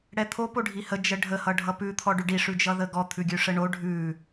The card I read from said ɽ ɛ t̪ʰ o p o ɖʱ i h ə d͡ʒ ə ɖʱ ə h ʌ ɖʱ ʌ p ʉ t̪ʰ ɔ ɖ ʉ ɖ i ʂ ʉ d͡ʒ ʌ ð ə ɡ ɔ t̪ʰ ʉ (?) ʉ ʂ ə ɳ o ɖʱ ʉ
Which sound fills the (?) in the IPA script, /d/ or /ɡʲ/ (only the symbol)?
ɡʲ